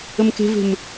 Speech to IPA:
ə m k e̤ v e̤ m

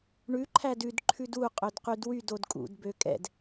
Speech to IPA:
ɳ ʉ ǃʰ æ d ʉ d ǃʰ ʉ d u qʼ ø d q y d w y d o d kʼ ṵ d b ø kʼ ɛ̰ d

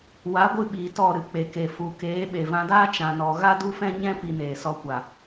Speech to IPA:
w a˨˦ ɡʷ ɨ˧ ɓ iː˨ t ɔ˦˨ ɾ ɨ˧ k͡p e˨ k e˨ f u˨ k eː˨˦ ɓ e˨ v ã˧ d aː˦ t͡ʃ ã˧ n ɔ˧ ɣ a˦ d u˦ f ɛ̃˦ ɲ ɛ̃˦ p i˧ n eː˨ s ɔ˧ kʷ a˨

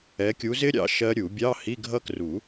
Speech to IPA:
ɛ˨˦ kʲ u˨˦ z ɪ˦˥ ɾʲ ɑ̰˦˥ ʃ ɜ˦˥ ɾʲ u˨˩˦ bʲ ɑ˧˥˧ h i˧˥˧ ɡʱ ʌ˦˥ k r u˨˩˦

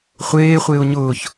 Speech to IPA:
χʷ eː χʷ ɪː ʊ̯ ɲ ʊː ç

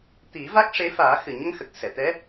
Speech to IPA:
t̪ i˨˩˦ v a˦˥ k̚ ʂ e˧˥ f aː˨˩˦ x ɨ˨˩ ɲ ə˧ ŋ x ə˨˩ k̚ s ɛ˨˩˨ t̪ ɛ˧˥

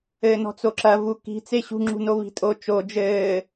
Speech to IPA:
ɘː n ɔ̤ t͡s o ǁ ɐ v u k i̤ t͡s e ɕ ṳ ŋ͡ǁ ṳ n o β i̤ tʼ o t͡ʃ o d͡ʒ ɘː

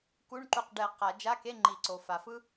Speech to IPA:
k u˧˥˧ ɳ ǃ u˧˩ q ɖ ɛ˨˩˦ q a˨˩˦ d͡ʒ a˧˥˧ k e˧˥˧ ŋ͡ǃ i˨˩˦ ǀ o˩ f a˩ f ɯ˥

